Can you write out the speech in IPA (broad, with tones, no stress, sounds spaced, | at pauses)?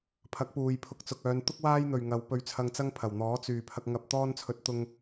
pʰ ɐ˨˥ k̚ p uː˨ j pʰ ʊ˧ k̚ t͡s ʊ˨ k̚ œː˨˧ n t̪ ʊ˥ k̚ w aː˥ j n̪ ɵ˨ ɥ ŋ ɐ˨˧ w p ɵ˧ ɥ t͡sʰ ɐ˧ ŋ t͡s ɐ˥ ŋ pʰ ɐ˨˩ w n̪ ɔː˨˥ t͡s yː˨ pʰ ɐ˧ k̚ ŋ ɐ˧ p̚ t̪ ɔː˥ n t͡sʰ ɵ˧ t̚ t̪ ʊ˧ ŋ